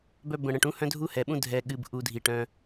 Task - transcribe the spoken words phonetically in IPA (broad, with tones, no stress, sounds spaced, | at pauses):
b œ˧ b ə̃˨ ɽ ə̃˨ ʈ ũ˦ h œ̃˦ dʱ u˦ h ɛ˨ ɓ ũ˦ dʱ ɛ˧ ɠ ɨ˧ b ʔ u˧ dʱ i˨ ʈ œ̃˧